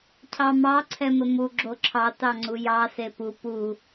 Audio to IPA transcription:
cʰ ɑ m ɑ ǀʰ ɛ m ɘ m u ɡ͡ǁ o ǁʰ ɑ t ɑ ŋ͡ǀ u j ɑ s e p u p u

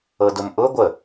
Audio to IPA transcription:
ɤ d ʊ m ʔ ʊ ɡʷ ə

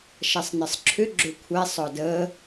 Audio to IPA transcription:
ʃ ɐ sˤ n ə sˤ ǁʰ ʏ ɡ͡ǁ ʏ kʷʰ ɛ sˤ ɔ d ə

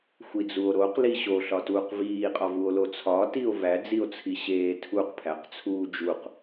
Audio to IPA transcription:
xʷ i d͡z u o̯ ɾ o q l i ɕ o ɬ ɒ t uː q v iː qʼ ɒ v u o̯ l o t͡sʰ ɒ t i o̯ v æ d͡z i o̯ t͡sʰ i ɕ eː tʰ u q pʰ æ q t͡sʰ uː d͡ʒ u q

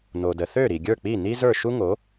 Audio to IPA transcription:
n o˩ d ə˩ θ ø˥˩ ɾ i˩ ɡʲ ə˞˥˩ k͡p i˥˩ n i˥ z ə˞˥˩ ʃ u˥ ŋ o˩˥

